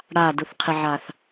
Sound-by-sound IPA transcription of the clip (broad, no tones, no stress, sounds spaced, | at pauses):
ɽ a d u θ qʰ ɪ ʕ a θ